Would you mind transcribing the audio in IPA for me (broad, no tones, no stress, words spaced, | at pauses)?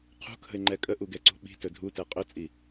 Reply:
qʰṳkʰə̤ɪ̯ŋ͡ǃɛ kʼəʔuɡɛǀṳ ɓi̤tɵ dʱutɛ qʼɵt͡sʼi